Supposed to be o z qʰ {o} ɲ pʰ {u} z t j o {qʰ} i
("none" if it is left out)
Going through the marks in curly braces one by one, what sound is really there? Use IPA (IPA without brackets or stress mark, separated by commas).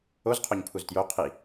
o, u, qʰ